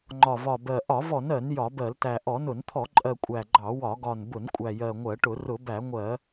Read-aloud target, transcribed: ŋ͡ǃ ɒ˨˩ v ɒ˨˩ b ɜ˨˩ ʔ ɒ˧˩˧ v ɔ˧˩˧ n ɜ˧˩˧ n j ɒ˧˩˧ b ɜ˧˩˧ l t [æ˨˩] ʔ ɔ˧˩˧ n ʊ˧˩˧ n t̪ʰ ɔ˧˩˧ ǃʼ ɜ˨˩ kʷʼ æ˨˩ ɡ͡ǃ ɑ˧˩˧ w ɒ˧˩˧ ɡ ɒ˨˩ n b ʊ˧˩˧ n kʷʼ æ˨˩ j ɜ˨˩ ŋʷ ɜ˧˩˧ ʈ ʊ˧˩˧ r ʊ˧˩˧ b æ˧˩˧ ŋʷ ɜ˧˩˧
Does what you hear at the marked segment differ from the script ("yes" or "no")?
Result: no